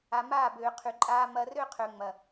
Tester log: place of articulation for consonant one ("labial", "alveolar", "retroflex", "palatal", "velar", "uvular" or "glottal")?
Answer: labial